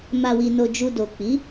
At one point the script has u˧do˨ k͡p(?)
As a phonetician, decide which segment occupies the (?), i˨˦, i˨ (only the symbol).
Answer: i˨˦